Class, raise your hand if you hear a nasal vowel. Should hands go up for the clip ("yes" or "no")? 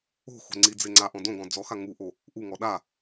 yes